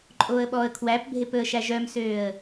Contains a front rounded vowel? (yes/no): yes